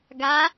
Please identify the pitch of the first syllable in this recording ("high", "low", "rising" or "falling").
rising